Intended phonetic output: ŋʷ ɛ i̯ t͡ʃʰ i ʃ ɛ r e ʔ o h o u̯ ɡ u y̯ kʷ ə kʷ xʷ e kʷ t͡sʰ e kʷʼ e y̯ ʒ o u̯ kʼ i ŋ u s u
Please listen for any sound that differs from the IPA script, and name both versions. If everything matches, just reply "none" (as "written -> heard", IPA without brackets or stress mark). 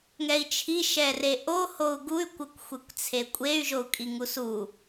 ŋʷ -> ŋ